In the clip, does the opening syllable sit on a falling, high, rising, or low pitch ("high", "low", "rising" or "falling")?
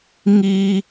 high